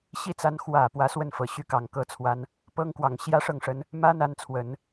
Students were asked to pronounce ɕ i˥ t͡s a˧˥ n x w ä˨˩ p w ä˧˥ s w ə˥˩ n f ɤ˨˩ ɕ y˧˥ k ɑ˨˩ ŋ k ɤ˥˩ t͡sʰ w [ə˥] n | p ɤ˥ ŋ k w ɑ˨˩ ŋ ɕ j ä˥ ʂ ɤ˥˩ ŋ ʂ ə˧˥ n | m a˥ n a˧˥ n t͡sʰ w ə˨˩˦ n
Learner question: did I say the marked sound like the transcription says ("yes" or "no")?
no